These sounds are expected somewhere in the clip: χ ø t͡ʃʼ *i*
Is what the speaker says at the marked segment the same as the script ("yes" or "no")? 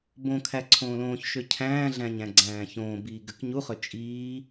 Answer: no